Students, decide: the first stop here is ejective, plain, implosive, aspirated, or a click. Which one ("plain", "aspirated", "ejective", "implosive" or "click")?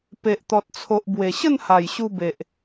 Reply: plain